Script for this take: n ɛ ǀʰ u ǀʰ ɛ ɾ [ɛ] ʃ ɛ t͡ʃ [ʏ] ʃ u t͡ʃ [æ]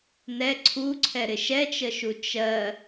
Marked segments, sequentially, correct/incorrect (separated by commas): incorrect, incorrect, incorrect